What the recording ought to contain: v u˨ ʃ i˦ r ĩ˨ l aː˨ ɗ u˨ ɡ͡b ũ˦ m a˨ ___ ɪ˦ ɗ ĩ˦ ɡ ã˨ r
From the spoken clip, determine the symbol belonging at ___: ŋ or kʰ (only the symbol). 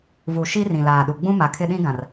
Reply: kʰ